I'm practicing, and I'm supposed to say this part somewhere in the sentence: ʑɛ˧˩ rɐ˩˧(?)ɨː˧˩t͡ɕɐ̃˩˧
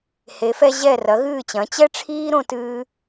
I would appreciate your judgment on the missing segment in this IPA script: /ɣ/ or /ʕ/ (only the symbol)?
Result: ɣ